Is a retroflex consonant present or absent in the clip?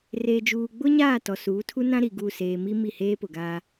absent